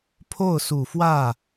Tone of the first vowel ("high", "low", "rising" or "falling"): falling